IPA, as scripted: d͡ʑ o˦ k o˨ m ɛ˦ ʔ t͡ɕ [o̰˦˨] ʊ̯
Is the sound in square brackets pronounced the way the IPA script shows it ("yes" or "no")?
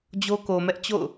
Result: yes